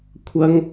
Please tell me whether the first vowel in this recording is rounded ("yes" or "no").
no